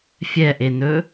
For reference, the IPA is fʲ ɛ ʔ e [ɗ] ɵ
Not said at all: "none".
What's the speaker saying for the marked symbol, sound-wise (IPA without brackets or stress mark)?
n